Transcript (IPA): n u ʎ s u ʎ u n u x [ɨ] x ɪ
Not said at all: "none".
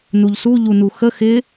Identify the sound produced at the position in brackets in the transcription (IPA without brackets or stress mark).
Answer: ə